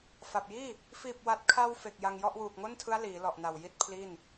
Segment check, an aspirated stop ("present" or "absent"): present